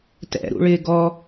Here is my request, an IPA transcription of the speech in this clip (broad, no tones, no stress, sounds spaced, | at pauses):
t ɛ̰ ɾ ṵ ɭ ɪː ɡ ɔ